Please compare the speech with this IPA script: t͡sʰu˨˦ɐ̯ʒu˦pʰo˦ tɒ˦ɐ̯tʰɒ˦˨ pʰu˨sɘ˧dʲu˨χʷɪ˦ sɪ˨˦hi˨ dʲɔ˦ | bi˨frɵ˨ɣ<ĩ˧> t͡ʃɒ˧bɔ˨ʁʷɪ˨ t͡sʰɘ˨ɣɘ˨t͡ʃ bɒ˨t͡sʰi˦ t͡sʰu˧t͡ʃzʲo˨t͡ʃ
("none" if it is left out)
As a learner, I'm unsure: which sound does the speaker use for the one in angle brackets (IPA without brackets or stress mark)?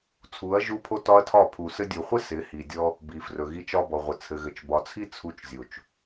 i˧